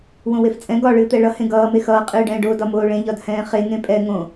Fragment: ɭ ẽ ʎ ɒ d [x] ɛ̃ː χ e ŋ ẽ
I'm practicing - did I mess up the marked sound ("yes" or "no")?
yes